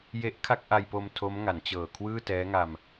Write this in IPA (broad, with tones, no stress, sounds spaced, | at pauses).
j e˦˥ ʔ kʰ a˥˩ k̚ ʔ a˧ j p o˧ m tʰ o˦˥ m ŋ a˩˦ n t͡ɕ ɤː˨˩ kʰ w ɯː˥˩ t ɛː˦˥ ŋ a˧ m